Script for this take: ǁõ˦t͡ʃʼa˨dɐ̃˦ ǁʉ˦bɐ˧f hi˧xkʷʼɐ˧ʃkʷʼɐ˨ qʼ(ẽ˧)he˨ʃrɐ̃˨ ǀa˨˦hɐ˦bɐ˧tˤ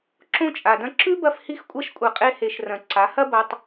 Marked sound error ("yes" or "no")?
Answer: yes